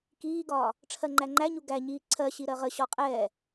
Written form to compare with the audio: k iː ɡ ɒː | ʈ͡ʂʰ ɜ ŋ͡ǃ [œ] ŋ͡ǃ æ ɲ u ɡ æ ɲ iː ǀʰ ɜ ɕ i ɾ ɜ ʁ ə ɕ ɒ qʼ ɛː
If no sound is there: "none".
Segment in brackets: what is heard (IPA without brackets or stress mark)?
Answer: æ